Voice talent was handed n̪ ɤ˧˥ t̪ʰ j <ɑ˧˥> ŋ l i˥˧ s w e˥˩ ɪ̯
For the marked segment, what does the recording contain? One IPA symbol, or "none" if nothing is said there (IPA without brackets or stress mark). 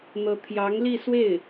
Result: ɑ˧˥